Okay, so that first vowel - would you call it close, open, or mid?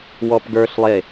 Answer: mid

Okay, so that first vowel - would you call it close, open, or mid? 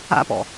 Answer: open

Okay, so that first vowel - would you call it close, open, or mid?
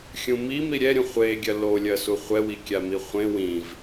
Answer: close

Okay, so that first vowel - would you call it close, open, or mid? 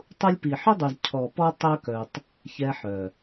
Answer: close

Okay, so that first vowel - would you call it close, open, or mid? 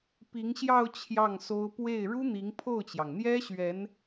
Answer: close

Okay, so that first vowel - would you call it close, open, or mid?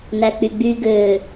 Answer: open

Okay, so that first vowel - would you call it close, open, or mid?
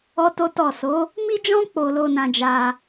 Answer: mid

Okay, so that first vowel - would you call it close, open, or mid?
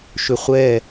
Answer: close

